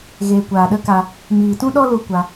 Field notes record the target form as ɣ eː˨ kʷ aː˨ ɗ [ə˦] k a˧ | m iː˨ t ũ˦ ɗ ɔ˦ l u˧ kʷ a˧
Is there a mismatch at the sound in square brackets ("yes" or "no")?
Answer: no